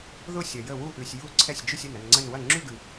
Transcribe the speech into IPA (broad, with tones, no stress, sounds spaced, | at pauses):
ð ʊ˥˧ sʲ ɐ˨ j ə˥˩ w u˥˧ ʔ ʉ˨ sʲ j u˥˩ ǀʰ ɛ˥˩ sʲ d͡ʒ ʉ˥˧ sʲ ə˥˩ n ɐ˥˧ n ŋ͡ǀ ə˥˧ n w ɐ˥˩ ŋ͡ǁ ʉ˥˧ ɡ ʉ˨